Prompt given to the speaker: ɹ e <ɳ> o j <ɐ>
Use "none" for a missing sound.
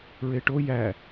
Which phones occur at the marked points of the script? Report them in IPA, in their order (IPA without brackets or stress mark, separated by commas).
ʈ, æ